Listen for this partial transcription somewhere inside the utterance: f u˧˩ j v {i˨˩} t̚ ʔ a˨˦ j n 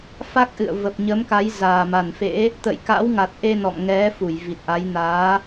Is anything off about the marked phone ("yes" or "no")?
no